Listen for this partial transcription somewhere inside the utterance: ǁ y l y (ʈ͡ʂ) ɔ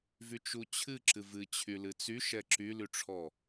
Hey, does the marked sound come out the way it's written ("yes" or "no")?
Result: no